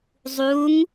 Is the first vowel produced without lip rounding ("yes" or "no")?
no